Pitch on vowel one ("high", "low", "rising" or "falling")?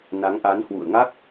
rising